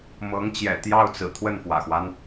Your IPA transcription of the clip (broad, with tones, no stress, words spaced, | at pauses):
mɤ˧˥ŋt͡ɕjɛ̰˨˩t̪jɑ˥˩ʊ̯t͡sɹ̩˨˩ t̪ʰwə˥˩nfwä̰˨˩xwa˦n